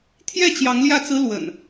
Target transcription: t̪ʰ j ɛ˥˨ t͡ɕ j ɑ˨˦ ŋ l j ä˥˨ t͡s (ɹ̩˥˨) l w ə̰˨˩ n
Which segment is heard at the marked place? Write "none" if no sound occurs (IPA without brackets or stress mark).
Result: ɹ̩˦